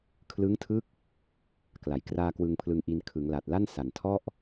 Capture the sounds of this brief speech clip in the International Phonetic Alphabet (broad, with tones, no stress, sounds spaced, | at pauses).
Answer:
kʰ l ɯ˦˥ ŋ tʰ ɯ˦˥ k̚ | k l a˨˩ j k r aː˧ k w ɯ˧ ŋ pʰ l ɯ˧ ŋ ʔ i˧ n kʰ ɯ˩˦ ŋ l a˨˩ t̚ l a˥˩ n s a˨˩ n tʰ ɔ˥˩ ʔ